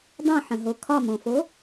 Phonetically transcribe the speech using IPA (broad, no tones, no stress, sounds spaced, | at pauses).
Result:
dˤ ũ ħ ə̃ ɦ o kʰ ɒ m õ f o